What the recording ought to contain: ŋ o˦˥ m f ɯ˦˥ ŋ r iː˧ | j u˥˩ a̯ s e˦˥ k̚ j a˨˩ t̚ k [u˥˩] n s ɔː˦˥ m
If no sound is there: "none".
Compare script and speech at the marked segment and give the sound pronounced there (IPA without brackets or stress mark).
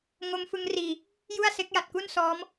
u˥˩